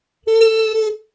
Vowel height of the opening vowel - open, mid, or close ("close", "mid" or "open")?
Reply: close